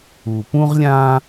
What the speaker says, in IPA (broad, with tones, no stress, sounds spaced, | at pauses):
u˨ p ũ˥ ʁ lʲ ã˥